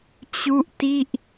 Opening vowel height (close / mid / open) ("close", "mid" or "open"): close